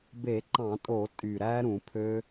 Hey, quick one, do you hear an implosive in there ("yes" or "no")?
no